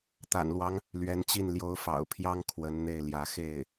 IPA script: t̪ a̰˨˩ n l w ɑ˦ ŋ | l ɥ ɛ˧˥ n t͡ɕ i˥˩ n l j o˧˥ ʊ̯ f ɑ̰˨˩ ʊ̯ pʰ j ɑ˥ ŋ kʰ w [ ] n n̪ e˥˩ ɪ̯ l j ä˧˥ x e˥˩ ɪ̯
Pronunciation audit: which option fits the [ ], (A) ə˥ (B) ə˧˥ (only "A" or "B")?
B